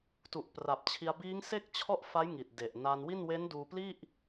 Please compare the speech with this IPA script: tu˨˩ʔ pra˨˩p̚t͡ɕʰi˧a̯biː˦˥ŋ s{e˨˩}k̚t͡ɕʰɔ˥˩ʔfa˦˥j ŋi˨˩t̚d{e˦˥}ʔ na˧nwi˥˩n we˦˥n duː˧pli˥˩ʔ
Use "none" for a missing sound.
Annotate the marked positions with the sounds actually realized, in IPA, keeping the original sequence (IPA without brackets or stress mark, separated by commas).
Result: e˥˩, e˨˩